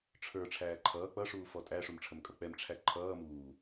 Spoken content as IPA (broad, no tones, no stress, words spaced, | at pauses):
ʈ͡ʂʰə˞ ʈ͡ʂʰæːǃʰʌː k͡pʌʂuː fɔtʼæ ʂumʈ͡ʂʰəmkʼʌk͡pɛm ʈ͡ʂʰæǃʰʌː muː